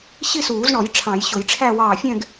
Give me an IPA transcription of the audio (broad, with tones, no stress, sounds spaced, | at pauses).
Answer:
ɕ i˥˧ s uː˨˩˦ z ɳ ɔ˨˩˦ j ʈ͡ʂʰ ɑ̃˨˩˦ j ɕ ʊ˨˩˦ j ʈ͡ʂʰ æ˥˧ w ɑː˧˩ fʲ ɛ̃˥˧ ɡ